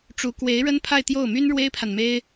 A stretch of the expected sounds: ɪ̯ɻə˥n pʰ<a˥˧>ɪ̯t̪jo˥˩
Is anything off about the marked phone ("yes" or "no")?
no